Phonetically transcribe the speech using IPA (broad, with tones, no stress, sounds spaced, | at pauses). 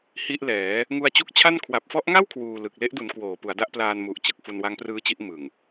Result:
h i˦˥ ʔ l ɛː˩˦ | ŋ u˧ a̯ t͡ɕ u˦˥ k̚ t͡ɕʰ a˥˩ n kʰ w a˨˩ p̚ f ɔ˦˥ ʔ ŋ a˥˩ w kʰ w uː˧ l ɯ˨˩ k̚ l e˦˥ ʔ d u˩˦ n k w oː˩˦ p u˩˦ a̯ d a˦˥ ʔ p l aː˧ n m u˨˩ ʔ t͡ɕ ɯ˨˩ k̚ f u˧ n w a˦˥ ŋ p r ɯː˦˥ t͡ɕ i˦˥ ʔ m ɯ˨˩ ŋ